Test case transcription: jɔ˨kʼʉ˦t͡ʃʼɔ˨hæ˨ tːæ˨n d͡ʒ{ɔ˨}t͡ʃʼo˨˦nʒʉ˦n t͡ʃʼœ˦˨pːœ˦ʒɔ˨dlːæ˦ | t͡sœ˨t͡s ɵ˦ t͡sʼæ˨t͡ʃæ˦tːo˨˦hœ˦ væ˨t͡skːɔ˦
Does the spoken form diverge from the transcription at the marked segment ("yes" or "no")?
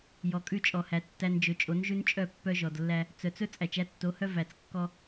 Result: yes